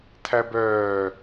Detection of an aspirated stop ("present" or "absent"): present